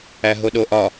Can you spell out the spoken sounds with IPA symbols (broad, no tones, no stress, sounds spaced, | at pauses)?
æ ɦ o ɗ o ʔ ɒ